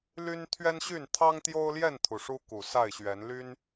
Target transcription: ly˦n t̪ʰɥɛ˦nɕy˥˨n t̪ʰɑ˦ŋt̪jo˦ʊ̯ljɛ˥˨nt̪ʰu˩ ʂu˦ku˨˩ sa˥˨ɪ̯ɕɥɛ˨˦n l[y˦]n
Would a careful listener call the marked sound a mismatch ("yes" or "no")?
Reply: no